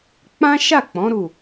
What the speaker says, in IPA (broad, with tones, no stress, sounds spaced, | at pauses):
k͡p ã˦ ʃ a˦˨ k͡p ɔ̃˨˦ ɾ u˦˨